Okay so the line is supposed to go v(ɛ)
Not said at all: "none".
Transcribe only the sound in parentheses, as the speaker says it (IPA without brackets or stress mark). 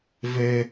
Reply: ɛ